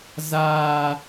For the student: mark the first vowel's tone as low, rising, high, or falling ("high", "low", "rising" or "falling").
high